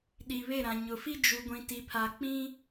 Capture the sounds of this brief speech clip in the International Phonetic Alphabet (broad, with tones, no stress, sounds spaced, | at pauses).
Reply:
ɗ i˨ β e˦˨ ɾ ã˨ ɲ ʊ˨ f i˦ d͡ʒ u˨ ɡʷ ĩ˨ t i˨ pʰ a˨ k͡p ĩ˦